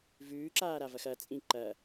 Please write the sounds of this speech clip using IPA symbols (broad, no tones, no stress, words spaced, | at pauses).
vʉːǁaːɾavɐx ɐt͡sʼĩ ǃɐ